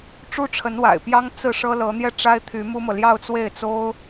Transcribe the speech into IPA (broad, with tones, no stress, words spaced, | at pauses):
ʈ͡ʂu˥ʈ͡ʂʰə˧˥nwa̰˨˩ɪ̯pjɑ˥ŋ t͡sɹ̩˥˩ʂɤ˥ lɤ˧˥n̪jɛ˥˩ ʈ͡ʂa˥ɪ̯t̪ʰy˧˥mu˥mɤ˨ ljɑ˥˧ʊ̯t͡swe˥˩ɪ̯t͡so˥ʊ̯